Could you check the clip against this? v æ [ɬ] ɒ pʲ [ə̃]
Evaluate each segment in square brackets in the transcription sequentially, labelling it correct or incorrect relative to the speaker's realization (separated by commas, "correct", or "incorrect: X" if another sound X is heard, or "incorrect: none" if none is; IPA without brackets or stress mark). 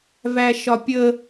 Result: incorrect: ʃ, incorrect: ə